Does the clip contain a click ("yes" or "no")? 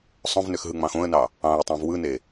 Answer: no